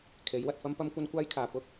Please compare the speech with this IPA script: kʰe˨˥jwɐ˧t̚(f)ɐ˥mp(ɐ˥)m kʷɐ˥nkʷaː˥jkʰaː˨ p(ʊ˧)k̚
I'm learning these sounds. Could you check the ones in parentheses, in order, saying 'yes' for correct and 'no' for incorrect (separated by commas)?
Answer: yes, yes, no